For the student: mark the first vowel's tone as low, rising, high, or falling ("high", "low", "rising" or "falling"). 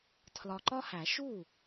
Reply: low